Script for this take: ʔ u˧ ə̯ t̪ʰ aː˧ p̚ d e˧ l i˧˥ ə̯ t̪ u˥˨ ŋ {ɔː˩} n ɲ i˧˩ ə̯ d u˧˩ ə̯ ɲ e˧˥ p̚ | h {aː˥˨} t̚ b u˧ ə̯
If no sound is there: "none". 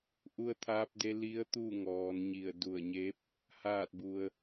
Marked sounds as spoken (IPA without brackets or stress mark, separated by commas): ɔː˩˧, aː˥˨